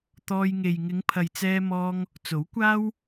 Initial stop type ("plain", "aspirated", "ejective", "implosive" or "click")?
plain